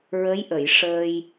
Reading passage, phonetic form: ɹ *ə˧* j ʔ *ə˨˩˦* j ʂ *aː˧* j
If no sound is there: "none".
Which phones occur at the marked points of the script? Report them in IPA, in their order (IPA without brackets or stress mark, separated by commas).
ə˧˥, ə˨˩˨, əː˧